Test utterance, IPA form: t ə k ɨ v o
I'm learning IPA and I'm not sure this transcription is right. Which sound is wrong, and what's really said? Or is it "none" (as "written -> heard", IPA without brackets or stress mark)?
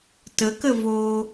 ɨ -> ə